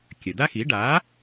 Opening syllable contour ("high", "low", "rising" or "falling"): low